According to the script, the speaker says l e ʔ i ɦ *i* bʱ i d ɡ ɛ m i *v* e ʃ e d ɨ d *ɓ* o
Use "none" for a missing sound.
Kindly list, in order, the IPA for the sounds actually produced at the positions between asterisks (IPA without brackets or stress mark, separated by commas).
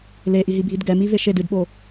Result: i, v, ɓ